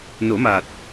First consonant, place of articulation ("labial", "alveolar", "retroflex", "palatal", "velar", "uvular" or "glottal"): alveolar